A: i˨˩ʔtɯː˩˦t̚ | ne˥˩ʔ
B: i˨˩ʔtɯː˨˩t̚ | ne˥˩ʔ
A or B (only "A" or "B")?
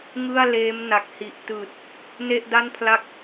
B